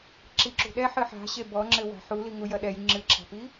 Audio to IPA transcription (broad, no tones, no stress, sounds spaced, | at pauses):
ǁ i ǁ ṳ ɗ ɛ ħ ɨ ħ a̤ ɕ e b ɔ ŋ͡ǁ ɘ w a̤ ħ u l i ŋ u j ɐ ɗ ɛ j ŋ͡ǁ ɨ ǁʰ a̤ p i